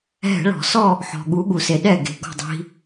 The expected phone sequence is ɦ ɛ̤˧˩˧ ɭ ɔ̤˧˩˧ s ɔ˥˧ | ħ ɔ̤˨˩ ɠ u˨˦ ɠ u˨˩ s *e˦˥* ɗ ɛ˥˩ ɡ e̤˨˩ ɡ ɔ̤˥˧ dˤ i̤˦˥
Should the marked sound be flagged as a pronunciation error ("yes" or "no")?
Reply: yes